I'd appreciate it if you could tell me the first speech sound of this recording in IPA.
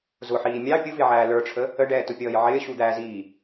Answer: z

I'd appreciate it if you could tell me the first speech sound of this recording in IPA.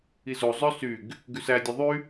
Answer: i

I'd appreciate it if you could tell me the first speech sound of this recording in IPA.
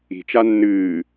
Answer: i̤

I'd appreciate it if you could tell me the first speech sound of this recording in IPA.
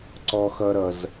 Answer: ǀ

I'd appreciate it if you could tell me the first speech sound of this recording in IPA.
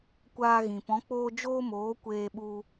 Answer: kʷ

